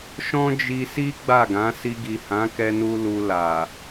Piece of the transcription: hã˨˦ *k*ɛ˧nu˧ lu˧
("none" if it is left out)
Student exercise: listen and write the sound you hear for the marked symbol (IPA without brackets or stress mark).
k